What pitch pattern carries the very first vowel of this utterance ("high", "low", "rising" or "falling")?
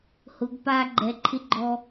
rising